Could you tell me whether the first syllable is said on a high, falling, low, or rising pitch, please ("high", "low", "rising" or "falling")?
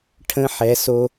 rising